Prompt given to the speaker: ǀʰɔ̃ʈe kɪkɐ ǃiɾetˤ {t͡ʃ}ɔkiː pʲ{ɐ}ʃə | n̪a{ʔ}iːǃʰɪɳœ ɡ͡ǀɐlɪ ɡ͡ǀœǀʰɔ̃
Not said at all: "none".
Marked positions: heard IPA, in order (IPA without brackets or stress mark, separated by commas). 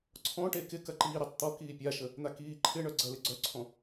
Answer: t̪, a, k